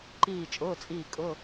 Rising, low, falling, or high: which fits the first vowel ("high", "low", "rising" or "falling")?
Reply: falling